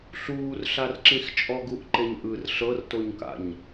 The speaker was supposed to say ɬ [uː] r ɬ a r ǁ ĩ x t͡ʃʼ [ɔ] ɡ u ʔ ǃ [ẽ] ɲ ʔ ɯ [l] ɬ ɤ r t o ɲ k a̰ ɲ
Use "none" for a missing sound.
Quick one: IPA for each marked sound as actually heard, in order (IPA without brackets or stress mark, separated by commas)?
uː, ɔ, e, r